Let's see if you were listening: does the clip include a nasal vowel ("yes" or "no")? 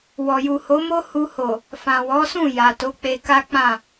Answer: yes